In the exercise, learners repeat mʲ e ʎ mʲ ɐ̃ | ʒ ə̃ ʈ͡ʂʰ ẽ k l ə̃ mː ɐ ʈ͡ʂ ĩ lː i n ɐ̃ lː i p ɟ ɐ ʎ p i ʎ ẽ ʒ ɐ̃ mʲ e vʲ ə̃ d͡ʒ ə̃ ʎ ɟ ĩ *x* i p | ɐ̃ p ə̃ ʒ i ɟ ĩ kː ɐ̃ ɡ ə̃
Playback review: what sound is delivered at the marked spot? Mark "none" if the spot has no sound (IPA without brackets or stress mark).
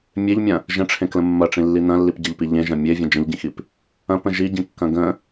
x